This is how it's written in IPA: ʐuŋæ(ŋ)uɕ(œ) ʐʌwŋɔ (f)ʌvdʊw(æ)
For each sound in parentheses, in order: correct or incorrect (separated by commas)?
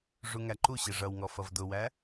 incorrect, incorrect, correct, correct